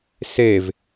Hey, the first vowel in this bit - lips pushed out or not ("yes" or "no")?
no